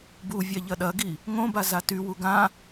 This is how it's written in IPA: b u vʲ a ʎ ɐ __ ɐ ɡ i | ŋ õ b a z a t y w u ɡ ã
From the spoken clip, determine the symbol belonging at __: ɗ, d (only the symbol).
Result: ɗ